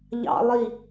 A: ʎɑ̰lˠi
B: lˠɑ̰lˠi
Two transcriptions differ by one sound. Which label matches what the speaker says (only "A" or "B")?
A